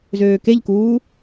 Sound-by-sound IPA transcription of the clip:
z øː k e ʎ k uː

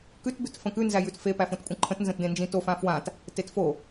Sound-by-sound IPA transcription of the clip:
k ʉ t b ʉ t f ə̃ k ʉ n z æ j ʉ t f e p æ f õ t kʷʼ ə̃ ǃʰ ə̃ t n z ə̃ t d ẽ n d͡ʒ ĩ t o f ã f w ã t | t e t f o

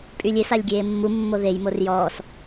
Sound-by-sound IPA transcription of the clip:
pʼ y lʲ e s a lʲ ɡʲ eː mː u mː o ð e j m o r j ɔː s

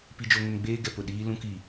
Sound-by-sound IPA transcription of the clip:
p i˦ d͡ʒ o˦ ŋ ʊ˦ n ɡ͡b eː˦ ɡ ɛ˨ p ʊ˦˨ ɗ iː˦ l ũ˦ k i˨

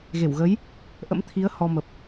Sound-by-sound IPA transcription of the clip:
ɣ e˧˩ w ɣ ə˨˦ j | ʔ ə̰˧˥ m t̪ʰ i˨˦ ə̯ h ɔ˧ m ə˨˩ p̚

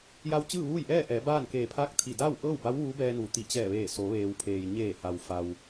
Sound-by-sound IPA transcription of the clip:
j a˧ w t͡ɕ ɯː˥˨ ʋ uː˥˨ j ʔ ɛː˥˨ ʔ ɛː˩˧ b aː˥˨ n k eː˧˩ pʰ aː˥˨ k̚ t̪ʰ i˧˩ d aː˥˨ w ʔ ɤː˥˨ w b a˧˥ w ʋ uː˧˥ b ɛː˧ n uː˩ t̪ i˧˩ t͡ɕ ɛː˧˩ ʋ eː˧˩ s o˩˧ ʋ eː˩ w pʰ eː˩ j ɲ eː˧˩ h a˩ w f a˩ w

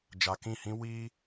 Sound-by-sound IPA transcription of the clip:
d͡ʒ a˧ k ĩ˦˨ h ĩ˦ w iː˦

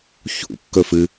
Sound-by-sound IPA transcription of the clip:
ç ṵ kː ɵ f ɨ

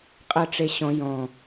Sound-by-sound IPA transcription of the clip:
qʼ ɜ ʈ͡ʂ e ɕ ɔ̃ j ɔ̃

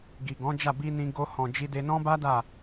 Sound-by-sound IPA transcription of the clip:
ɡ i˨ ɡ ɔ̃˨˦ d͡ʒ a˦˨ b i˧ n ĩ˧ ɡ o˧ h ɔ̃˨ d͡ʒ i˧ d e˧ n ɔ̃˦ b a˦ d a˦˨

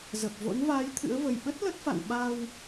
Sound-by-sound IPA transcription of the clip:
z ə˨˩ p̚ v o̰˧˥ n v aː˨˦ j t̪ʰ ɨ̰˧˥ ə̯ v ə˨˩ j ɓ ə˦˥ t̚ l ə˦˥ t̚ f a̰˧˨ n ɓ a˧ w

